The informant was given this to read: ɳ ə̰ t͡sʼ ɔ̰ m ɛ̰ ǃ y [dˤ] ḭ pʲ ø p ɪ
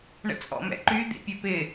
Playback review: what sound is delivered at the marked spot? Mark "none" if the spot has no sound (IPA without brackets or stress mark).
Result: d̪